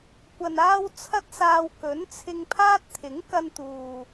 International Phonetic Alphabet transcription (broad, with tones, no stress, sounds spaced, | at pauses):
kʷ ɐ˨ n aː˧ w t͡sʰ ɐ˥ t̚ s aː˧ w k ɵ˨˥ n t͡sʰ ɪ˧ ŋ pʰ aː˥ t̚ t̪ʰ ɪ˨˥ ŋ k ɐ˧ n t̪ uː˨